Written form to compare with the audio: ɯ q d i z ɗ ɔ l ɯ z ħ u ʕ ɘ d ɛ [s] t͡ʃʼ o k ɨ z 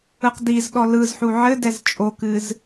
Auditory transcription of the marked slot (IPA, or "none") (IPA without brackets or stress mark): z